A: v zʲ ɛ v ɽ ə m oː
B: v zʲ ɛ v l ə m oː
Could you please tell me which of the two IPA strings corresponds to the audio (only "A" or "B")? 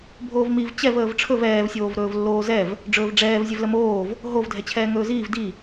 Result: B